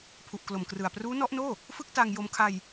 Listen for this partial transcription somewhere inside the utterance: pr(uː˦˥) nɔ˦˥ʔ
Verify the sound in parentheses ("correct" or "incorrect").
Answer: correct